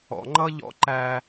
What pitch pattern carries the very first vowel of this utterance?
low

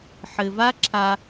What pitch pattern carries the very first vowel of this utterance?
low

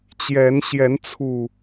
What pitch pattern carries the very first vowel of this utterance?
rising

